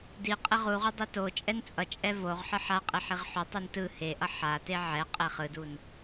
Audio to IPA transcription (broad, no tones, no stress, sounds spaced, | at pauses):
d i qʼ e ʁ u ʁ u dˤ i t o t͡ʃʼ ɛ n t͡sʼ ʌ t͡ʃʼ ɛ v o ʁ ħ ɯ ħ a qʼ i ħ i ʁ ħ o tˤ u n t ɯ h e ʔ ʌ ħ a t e ʕ ɛ qʼ e χ ɯ d u n